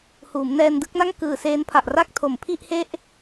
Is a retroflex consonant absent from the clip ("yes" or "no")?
yes